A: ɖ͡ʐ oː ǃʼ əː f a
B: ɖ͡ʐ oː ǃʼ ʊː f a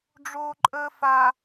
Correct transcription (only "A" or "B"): A